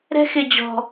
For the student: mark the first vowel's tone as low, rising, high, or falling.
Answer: high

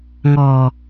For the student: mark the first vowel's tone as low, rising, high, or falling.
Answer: low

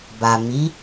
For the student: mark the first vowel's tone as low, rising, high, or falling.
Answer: low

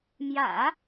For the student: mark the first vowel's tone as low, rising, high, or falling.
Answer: low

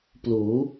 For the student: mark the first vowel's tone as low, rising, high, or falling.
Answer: rising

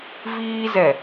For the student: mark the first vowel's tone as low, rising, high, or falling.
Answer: high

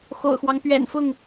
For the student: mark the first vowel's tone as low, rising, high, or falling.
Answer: low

